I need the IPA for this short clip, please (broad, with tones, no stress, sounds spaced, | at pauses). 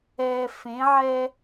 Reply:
ɛː˨ f ẽ˨˦ ʕ ɛː˦